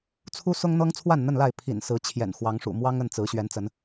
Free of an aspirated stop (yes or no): no